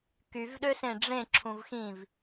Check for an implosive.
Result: present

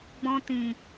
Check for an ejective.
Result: absent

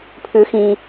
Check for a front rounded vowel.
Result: present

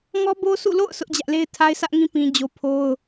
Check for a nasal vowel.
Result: present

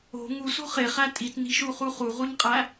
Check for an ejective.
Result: present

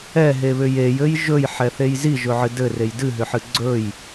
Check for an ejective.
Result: absent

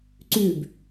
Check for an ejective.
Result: absent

